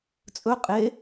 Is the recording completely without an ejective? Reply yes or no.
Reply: no